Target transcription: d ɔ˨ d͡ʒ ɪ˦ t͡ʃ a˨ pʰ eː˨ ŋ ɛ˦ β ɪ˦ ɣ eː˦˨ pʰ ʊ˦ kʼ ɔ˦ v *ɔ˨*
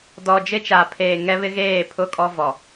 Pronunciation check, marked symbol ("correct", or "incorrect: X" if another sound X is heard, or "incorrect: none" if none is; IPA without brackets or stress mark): correct